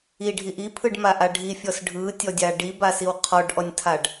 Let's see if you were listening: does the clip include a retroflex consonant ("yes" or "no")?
yes